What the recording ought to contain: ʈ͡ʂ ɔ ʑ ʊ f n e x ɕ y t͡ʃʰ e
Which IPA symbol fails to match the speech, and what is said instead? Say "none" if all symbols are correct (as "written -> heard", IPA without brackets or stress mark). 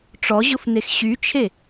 none